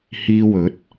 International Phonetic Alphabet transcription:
h iː˧ w ɵ˨˥ t̚

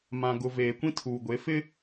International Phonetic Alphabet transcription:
m ã˨ ɡ ʊ˨ v eː˨ kʷ ĩ˦ tʰ uː˨ ɡʷ e˨˦ f ɪ˦

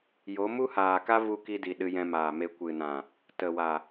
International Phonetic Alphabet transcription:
j o˨˦ m u˦ h aː˨ k a˦ v u˧ k i˧ d i˨ ɗ ɨ˧ j ɛ̃˧ m aː˨ m e˧ kʷ ɨ˨ n ã˨ | t ə˨ w a˨

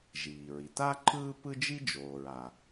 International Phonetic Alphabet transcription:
ʒ iː˩ ɹ i˩ t a˥ ǃʰ ɯː˥ p ɯ˥ d͡ʒ i˥ d͡ʒ oː˩ ɹ a˩

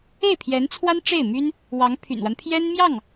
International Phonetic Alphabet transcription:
e˥˩ ɪ̯ pʰ j ɛ˧˥ n t͡sʰ w a˥ n ʈ͡ʂ e˥˩ ɪ̯ m y˥ n | w ɑ˧˥ ŋ pʰ y̰˨˩ n w a˦ n pʰ j ɛ˥ n m j ɑ˥˩ ŋ

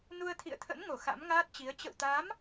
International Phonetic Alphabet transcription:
n u˧ ə̯ t̪ʰ ḭ˧˨ ə̯ t̪ʰ ə̰˧˥ n ŋ o˧˩ x a̰˧˥ m ŋ aː˦˥ t̚ t͡ɕ i˨˦ ə̯ t͡ɕ ə̰˧˨ w t̪ aː˨˦ m

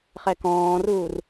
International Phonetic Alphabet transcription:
χ ɛ k ɔ̃ː r uː r

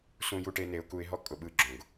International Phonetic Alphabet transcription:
s ũ˧ j u˧ ʈ e˧ n e˧ ʊ̯ k u˧ ɪ̯ ɦ ɔ˦ kʼ ʊ˧ ɓ ɯ˧ ɡ͡ǁ õ˨ ɡ

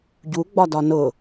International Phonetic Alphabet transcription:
ɟ u ɡ͡b ɒ d ɒ n ʊ

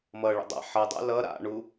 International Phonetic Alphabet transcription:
m ʌ ɭ ə̰ dˤ a̰ ħ ʌ dˤ a̰ l ʌ ɾ a̰ ɳ u

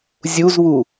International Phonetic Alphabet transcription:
zʲ u z β u

